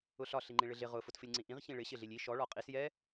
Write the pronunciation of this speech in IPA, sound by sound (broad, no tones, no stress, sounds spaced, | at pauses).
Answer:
ʊ ɬ ɒ ɬ i ŋ͡ǃ ĩ ɭ ɪ ɮ ɪ ʁ ʊ f ʊ t f ɪ lʲ ŋ͡ǀ ĩ ʔ ĩ ʁ ç ĩ ɭ ɪ ɕ ɪ ɮ i lʲ i ʃ ɔ ɭ ɒ qʼ i s j ɛ